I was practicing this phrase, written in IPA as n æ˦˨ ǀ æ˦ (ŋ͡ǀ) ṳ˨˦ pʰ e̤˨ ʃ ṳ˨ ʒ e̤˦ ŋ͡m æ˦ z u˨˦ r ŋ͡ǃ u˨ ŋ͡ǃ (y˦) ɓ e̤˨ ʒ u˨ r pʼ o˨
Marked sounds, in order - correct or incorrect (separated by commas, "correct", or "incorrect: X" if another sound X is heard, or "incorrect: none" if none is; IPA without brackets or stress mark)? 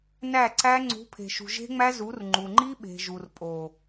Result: correct, incorrect: i˦